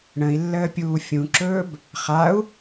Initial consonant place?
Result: retroflex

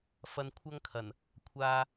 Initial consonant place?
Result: labial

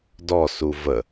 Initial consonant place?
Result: alveolar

